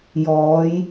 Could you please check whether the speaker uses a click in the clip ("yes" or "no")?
no